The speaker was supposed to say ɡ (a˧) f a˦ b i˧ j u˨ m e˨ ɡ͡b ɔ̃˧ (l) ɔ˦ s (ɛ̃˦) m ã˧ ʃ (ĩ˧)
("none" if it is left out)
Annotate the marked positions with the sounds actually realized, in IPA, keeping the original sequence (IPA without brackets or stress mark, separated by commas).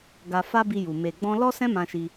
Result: a˧, l, ɛ̃˦, i˧